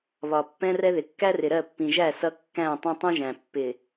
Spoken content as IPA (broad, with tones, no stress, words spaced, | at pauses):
βɒ˨ pːɛ̃˦rɛ˦ðɪ˨ kːæ˦rɪ˨ɾɜ˦˨pːĩ˨ ʒæ˦˨ sʌ˦ kːæ̃˦˨ tˤɑ̃˦tˤũ˦ʒæ̃˨ pːɪ˨